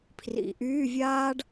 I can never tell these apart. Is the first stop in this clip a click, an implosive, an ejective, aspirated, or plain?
aspirated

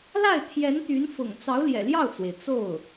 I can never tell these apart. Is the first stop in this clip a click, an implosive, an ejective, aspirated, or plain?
aspirated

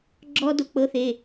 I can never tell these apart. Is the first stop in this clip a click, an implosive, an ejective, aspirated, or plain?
click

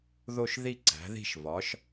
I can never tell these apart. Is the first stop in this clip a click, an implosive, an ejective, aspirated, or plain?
click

